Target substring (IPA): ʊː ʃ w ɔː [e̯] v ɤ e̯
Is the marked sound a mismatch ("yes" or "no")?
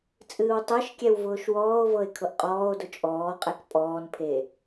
yes